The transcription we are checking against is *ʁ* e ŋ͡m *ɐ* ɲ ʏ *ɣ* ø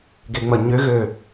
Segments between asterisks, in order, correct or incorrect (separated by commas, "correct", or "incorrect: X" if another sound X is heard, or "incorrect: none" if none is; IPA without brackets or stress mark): incorrect: ɡ, correct, correct